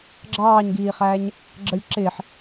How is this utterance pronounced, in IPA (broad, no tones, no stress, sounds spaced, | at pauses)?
ɡ͡ǁ ɑː ɲ ɡ iː χ æː ɲ | ɡ͡ǁ ə lʲ ǁ ɪː ħ